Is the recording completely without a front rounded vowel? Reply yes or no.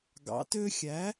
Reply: no